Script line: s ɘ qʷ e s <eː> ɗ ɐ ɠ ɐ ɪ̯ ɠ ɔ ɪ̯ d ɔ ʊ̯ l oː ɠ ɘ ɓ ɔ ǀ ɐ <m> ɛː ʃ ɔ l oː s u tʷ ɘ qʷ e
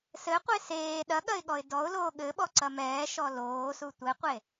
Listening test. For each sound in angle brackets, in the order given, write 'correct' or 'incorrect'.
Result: correct, correct

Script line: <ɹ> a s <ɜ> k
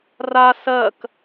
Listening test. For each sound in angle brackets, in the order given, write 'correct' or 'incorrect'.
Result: incorrect: r, correct

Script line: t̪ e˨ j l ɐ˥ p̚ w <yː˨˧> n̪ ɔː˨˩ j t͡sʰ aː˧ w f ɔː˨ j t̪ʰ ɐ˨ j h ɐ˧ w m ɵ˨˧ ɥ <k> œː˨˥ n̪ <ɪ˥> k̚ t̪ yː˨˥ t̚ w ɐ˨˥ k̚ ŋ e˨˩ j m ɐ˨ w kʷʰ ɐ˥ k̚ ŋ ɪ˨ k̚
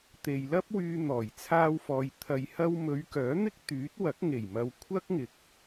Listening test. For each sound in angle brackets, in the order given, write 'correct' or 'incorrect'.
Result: incorrect: yː˧, correct, correct

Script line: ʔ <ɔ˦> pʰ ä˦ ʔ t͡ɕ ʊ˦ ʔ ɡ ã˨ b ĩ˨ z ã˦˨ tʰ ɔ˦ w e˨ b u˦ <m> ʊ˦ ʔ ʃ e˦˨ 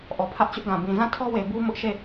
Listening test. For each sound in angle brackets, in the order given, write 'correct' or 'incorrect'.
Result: incorrect: ɔ˨, correct

